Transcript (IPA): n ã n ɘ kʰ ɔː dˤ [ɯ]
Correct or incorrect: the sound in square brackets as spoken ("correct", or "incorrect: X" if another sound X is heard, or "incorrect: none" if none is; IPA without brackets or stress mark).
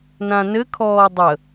incorrect: ə